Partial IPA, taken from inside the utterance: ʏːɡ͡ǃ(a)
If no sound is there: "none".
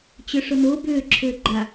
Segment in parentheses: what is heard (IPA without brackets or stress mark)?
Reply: a